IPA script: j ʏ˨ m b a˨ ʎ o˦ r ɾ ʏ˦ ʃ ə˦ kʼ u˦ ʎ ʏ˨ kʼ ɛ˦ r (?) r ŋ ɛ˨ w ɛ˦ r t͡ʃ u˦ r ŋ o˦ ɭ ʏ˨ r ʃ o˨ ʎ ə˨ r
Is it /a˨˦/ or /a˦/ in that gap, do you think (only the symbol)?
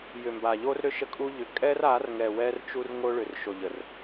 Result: a˨˦